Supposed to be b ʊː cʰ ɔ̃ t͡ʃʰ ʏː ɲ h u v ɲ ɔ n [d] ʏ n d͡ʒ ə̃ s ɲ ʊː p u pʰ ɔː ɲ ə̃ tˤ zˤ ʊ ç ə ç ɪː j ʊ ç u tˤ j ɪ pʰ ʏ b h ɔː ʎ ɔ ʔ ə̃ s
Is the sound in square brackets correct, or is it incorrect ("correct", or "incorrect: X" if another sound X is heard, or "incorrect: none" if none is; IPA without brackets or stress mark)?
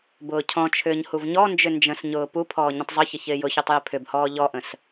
incorrect: d͡ʒ